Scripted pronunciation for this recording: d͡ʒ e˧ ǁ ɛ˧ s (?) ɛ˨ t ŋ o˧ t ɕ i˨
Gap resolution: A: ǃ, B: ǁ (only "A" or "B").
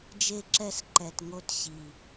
A